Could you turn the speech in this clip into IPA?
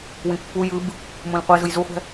w ĩ pː u j ɯ b | m ũ l qʷ e z ɯ j z u χʷ ɛ̤

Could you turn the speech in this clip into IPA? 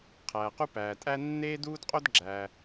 qʰ æː˩ q u˥ p æː˩ tʼ æ˥ nː eː˥ d uː˥ d qʼ o˥ d ɡ͡ǁ æː˩

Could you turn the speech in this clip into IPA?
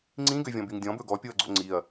ŋ͡ǀ ĩ ɡ ø vʲ ɔ̃ b y ŋ dʲ ɔ̃ b ɵ ɡ ɔ pʲ o ɐ̯ ɡ͡ǀ o̰ ŋ͡ǀ i ɐ̯

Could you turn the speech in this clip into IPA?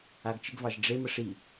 a ɡ t͡ʃ ɪ ɡ v ɑ ʒ ɖ͡ʐ e m ə ʂ i

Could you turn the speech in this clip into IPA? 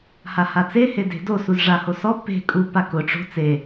h a h a t͡s e h e d e̤ d o s u z ʐ a h o s ɔ p e̤ kʼ u p a k ʊ ʈ͡ʂ o̤ t͡s e

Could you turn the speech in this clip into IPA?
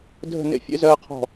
dʱ ə̤˥˨ n ḛ˥ fʲ ḛ˥ z ɜː˥ qʰ ɔ̤˥˨

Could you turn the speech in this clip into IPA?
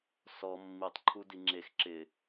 s ɔ mː i tˤ ǃʰ u d i ŋ͡ǁ e x ǁ ɪ

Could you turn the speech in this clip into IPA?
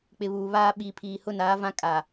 k͡p ɪ˨ β uː˨ β aː˦ ɓ i˨ pʰ iː˨ h ʊ˦˨ n aː˦ v ã˦ kʼ a˨

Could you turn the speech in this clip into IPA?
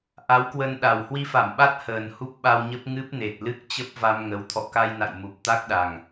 ʔ a˨˦ w k w ə˧ n ɗ a˨˩ w h w i˧ f a˧˩ m ɓ a˦˥ t̚ h əː˨˩ n h u˦˥ p̚ ɓ a˧ w ɲ ə˦˥ p̚ ŋ ɨ˦˥ p̚ n e˨˩ t̚ l ɨ˦˥ k̚ t͡ɕ ə˦˥ p̚ v a˧ m ŋ ə˨˦ w t̪ʰ ɔ̰˧˨ k a˧ j n a̰˧˨ j m u˨˩ p̚ t̪ a˦˥ k̚ ɗ a˨˩ ŋ

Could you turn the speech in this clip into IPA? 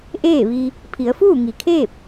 ʔ eː˥˨ ʋ i˧ | pʰ i˩˧ ə̯ f uː˥˨ ŋ i˩ kʰ eː˥˨ p̚

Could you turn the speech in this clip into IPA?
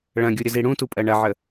ɭ ɐ̃ ɡʲ u ɾʲ ə z i ɽ ũ t u pʼ ɜ ɳ ɐ ʕ ə

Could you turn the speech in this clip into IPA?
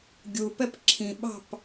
ɡʲ u p ɛ p ǁʰ ĩ ɓ ɑ̤ p

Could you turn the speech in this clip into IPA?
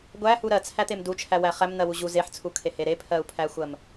ɡʷ æ h u ɾ ɜ t͡sʰ æ t̪ e m d u t͡ʃʰ æ w æ χ æ m n̪ ɜ w u ʑ u z e ħ t͡sʰ u kʰ e h e ɾ e pʰ ɜ u̯ pʰ æ xʷ ɜ m

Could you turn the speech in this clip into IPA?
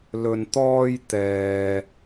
l ɵ˨ n t̪ ɔː˧ j t̪ ɛː˨

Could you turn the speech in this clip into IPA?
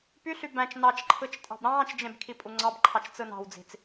p y ɬ y b æ̃ t͡ʃ n ɑ t͡ʃ ǃʰ ɯ t͡ʃ tʼ ɑ̤ b ɾ ɑ̃ː t͡ʃ d͡ʒ ẽ b kʰ i pʼ u ŋ͡ǀ ɑ b ǃʰ ɑ t͡ʃ t͡s ɯ n ɑ̤ w d͡z i̤ t͡s

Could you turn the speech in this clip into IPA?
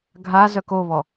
ɡʱ a z œ k o β ɔ

